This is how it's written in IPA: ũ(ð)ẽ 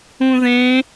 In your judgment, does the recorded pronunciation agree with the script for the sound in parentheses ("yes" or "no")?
yes